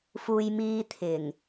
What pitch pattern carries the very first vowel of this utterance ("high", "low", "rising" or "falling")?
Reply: low